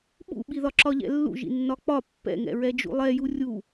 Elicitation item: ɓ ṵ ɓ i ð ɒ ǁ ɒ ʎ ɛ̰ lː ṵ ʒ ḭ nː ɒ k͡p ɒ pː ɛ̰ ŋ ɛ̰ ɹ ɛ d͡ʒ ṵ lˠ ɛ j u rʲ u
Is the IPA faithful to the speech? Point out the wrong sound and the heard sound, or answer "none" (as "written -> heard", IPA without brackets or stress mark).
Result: none